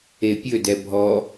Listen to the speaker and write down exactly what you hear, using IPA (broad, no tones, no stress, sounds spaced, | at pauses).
e pʲ ɵ d ɛ bʱ ɔ